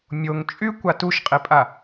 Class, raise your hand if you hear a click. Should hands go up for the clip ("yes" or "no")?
no